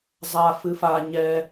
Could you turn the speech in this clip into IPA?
zˤ a f ɨ f a ɲ ɛ

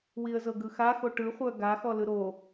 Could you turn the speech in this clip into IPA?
w i ə̯ z ɤ ɡ ɯ x a x o ʈ ɯ χʷ œ ɡ a x ɔ l ɯ ɾ o

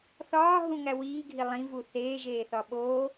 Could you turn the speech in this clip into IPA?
θ ɒː ɦ ũ ŋ æ w iː ɡʱ i lˠ ĩ v u θ eː ʒ eː θ ɒ ɓ oː

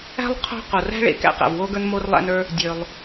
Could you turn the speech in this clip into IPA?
æ̤˥ lˠ qʰ o̤˥ q o˩ r æ̤˥ ɭ ḛ˩ k æ̰˥ q æ̰˩ v w o˥ ɡ ə˞˥ n m o˥ r lˠ æ̰˥ n ə˞˥ | dʲ ø˩ lˠ

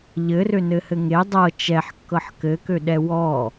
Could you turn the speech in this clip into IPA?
ʎ ɘ r ø n ɘ h ɘ ŋ e dˤ ɤ t͡ʃ ɛ ħ kː ɤ ħ k ɘ k ø ɗ ɛ w ɔ

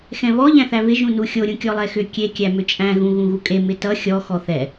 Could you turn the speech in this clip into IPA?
x ɛ̃ β ɔ ʎ æ̃ θ æ β ɪ ʒ ũ n u xʲ o ɾʲ ũ kʲ ɔ lˠ ɛ x ʏ kʲ e kʲ æ m ʏ t͡ʃʼ æ̃ ɣ ũ ɣ ũ ɣ u kʼ e m ɪ t ʌ xʲ ɔ x ɔ θ ɛ

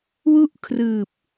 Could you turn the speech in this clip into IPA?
w u˥˩ ʔ kʰ r ɯː˨˩ p̚

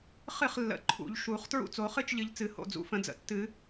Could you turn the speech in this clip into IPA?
χ ɨ˥˩ χ lː ə̰˨˩˦ ǃʰ ṵ˨˩˦ ʎ ʃ u˨˩˦ χ t ɹ ṵ˥˩ t͡s o˨˩˦ χ ɨ˥˩ t͡ʃ ʎ ɨ˨˩˦ ʎ t͡s ɨ˨˩˦ h o̰˥˩ d͡z ṵ˨˩˦ f ə̃˨˩˦ d͡z ə̰˨˩˦ tː ɨ˨˩˦

